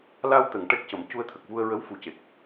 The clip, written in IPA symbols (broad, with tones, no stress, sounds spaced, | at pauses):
l a˧ w t̪ ə˨˩˨ ŋ ʈ ɛ˦˥ k̚ c ə˨˩˨ m c u˧ ə̯ t̪ʰ ə˨˩ k̚ v u˧ ə̯ ɹ ə˧˥ w f u˨˩ c e˨˩ k̚